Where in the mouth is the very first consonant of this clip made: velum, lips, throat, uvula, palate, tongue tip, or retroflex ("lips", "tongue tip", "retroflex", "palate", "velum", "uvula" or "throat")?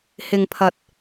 throat